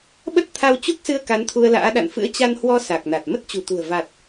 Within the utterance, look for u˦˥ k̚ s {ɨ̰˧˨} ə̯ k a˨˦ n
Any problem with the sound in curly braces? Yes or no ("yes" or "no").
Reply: yes